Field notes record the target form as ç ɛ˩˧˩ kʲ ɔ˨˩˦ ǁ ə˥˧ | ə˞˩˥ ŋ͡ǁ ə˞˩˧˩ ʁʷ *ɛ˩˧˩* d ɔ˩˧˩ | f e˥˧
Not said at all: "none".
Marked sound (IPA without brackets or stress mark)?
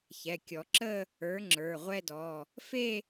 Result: ɛ˥˧